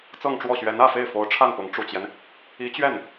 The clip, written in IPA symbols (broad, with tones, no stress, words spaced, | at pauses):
t͡sɤ˥˧ŋʈ͡ʂwɔ˥˩ɕɥɛ˧˥n ä˥˧fe˥˩ɪ̯fo˧˥ʊ̯ ʈ͡ʂʰa˥˩npʊ˧˥ŋ ʈ͡ʂu˨˩t͡ɕjɛ˦n | i˧˥t͡ɕɥɛ˥˩n